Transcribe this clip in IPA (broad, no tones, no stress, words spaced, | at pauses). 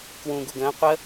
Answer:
kwũ ɡuɡə̃ː qʷə